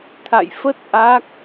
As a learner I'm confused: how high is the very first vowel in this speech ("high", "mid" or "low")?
low